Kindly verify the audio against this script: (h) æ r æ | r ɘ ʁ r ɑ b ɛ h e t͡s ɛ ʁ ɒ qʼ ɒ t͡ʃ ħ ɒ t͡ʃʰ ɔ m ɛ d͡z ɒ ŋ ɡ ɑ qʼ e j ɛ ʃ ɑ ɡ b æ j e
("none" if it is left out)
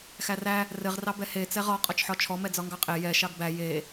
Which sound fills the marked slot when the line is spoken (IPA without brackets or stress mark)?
x